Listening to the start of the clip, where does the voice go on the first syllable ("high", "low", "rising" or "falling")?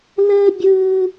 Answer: high